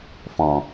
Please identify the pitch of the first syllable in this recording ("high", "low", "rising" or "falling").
low